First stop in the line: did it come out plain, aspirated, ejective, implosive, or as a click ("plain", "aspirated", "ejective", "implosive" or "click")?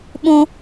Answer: implosive